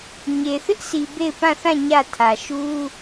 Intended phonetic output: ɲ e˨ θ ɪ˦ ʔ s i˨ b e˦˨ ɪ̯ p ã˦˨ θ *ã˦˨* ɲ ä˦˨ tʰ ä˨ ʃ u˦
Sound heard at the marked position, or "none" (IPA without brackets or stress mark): ã˦˨